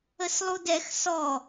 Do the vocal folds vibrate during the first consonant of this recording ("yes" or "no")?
no